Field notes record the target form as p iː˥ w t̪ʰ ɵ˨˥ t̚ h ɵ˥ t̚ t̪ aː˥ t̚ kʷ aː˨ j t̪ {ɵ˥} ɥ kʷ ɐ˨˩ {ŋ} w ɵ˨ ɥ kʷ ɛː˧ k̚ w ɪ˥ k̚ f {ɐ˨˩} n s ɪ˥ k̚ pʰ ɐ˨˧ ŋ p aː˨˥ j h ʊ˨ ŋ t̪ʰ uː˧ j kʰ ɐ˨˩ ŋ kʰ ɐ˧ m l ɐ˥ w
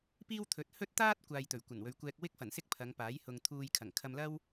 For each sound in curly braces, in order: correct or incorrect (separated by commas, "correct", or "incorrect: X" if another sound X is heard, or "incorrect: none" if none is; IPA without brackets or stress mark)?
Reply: incorrect: ɵ˨˩, incorrect: n, correct